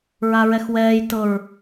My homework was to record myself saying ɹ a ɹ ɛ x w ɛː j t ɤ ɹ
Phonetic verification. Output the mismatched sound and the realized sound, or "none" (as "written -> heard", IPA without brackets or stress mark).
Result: none